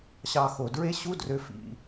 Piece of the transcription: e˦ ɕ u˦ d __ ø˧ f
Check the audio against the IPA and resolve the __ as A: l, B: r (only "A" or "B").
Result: B